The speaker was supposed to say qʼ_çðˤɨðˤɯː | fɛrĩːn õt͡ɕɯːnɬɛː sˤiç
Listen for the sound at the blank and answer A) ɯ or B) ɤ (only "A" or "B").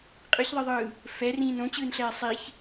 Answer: A